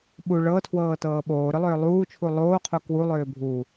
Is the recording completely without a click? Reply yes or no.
yes